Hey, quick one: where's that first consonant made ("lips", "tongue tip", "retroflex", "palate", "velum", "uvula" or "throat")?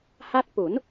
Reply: throat